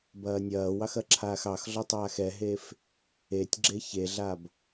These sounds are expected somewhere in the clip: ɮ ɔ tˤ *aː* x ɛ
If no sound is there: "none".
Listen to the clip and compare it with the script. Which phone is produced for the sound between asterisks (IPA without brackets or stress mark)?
aː